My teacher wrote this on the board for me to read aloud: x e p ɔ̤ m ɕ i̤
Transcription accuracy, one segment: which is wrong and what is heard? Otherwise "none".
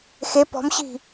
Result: none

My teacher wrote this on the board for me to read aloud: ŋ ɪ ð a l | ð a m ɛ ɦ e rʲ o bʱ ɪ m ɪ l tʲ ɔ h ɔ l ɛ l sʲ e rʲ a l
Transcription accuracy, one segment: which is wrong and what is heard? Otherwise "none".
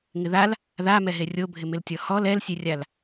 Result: none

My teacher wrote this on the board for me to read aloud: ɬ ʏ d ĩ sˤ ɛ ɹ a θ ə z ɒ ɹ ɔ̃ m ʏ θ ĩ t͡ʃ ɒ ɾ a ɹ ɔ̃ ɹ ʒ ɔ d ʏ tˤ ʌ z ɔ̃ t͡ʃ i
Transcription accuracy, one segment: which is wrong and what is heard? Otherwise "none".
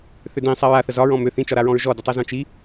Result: ɬ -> θ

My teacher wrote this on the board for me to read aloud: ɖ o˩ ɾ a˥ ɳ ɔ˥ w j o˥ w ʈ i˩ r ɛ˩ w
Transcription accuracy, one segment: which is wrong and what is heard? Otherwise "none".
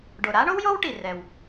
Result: ɔ˥ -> o˥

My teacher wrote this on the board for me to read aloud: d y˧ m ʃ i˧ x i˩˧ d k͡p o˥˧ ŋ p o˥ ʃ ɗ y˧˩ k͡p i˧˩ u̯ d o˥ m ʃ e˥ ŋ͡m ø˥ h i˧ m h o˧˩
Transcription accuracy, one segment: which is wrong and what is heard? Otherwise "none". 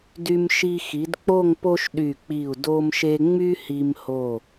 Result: ø˥ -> y˥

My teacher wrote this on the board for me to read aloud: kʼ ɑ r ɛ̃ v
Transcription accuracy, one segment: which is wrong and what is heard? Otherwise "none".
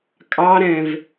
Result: r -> ɾ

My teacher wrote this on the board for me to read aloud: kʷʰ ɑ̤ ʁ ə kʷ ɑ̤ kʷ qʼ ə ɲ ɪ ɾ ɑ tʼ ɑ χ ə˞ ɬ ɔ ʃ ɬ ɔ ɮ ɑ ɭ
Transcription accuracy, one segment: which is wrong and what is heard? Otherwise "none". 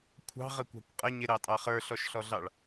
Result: none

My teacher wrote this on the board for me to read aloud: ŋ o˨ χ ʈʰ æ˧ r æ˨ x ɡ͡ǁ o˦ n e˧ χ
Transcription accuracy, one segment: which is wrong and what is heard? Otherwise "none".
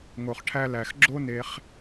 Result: r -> l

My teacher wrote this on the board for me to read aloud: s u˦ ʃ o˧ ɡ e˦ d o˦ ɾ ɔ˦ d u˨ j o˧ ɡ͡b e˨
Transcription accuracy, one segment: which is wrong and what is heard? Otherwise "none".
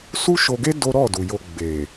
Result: ɔ˦ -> ɔ˦˨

